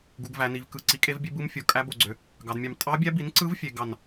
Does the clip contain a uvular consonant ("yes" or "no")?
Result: no